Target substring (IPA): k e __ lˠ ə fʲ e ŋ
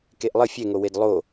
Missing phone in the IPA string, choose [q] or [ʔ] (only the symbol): ʔ